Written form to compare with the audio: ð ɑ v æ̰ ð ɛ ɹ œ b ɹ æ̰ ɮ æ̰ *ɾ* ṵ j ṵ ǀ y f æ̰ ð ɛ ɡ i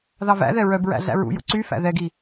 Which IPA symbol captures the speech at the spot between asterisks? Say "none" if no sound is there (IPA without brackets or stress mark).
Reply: ɹ